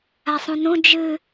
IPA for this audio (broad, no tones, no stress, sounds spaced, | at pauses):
a sˤ ũ n ũ d͡ʒ ɨ